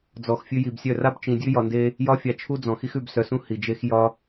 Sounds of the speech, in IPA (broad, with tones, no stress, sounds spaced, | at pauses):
d͡z ɔ˨ x fʲ ʉ˧ j i˨ b sʲ œ˦˨ r a˦ b t͡ʃ ĩ˨ dʲ ʉ˦ j ɒ˧ n d e˦ | j ɒ˦ fʲ a˧ t͡ʃʰ u˦ d͡z ɔ̃˨ x i˦ x ʉ˧ b s œ˧ s ũ˦ h i˨ d͡ʒ e˦ x j ɒ˦